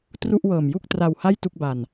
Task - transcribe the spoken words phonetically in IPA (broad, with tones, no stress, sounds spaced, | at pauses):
t r u˥˩ ʔ w ɤː˨˩ m j u˥˩ k̚ t r a˧ w h a˥˩ j t u˥˩ k̚ b a˧ n